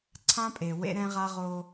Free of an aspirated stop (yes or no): no